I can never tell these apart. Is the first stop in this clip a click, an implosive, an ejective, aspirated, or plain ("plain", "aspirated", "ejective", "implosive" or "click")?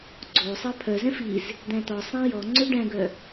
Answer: click